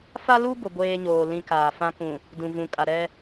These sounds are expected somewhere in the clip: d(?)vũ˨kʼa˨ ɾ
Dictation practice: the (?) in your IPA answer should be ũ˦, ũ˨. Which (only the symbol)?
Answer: ũ˨